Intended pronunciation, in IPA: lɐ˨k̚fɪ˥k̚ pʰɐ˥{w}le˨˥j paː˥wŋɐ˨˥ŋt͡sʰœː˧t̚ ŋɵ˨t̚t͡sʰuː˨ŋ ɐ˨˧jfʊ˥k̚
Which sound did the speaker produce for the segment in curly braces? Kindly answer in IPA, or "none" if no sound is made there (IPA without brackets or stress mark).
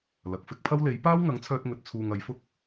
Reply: w